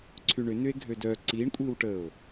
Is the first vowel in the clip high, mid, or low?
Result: high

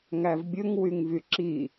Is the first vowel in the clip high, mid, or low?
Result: low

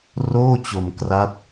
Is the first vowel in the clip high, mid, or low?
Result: mid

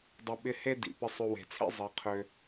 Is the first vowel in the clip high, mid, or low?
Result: high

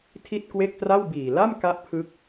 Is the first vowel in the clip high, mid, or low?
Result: high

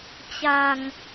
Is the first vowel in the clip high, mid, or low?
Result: low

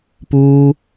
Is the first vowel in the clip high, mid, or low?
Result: high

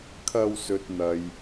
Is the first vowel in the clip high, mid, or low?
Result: low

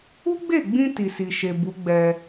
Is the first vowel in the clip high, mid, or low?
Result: high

